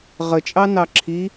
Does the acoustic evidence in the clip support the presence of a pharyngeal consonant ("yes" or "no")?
no